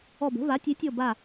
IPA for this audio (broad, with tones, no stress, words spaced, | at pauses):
ɔ˧˩bə̤˩˥ va˩˥tʲe˩˥tʲɔ˧˩ ba˧˩